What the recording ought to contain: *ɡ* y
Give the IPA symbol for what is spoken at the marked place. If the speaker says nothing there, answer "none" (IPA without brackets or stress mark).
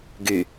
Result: ɡ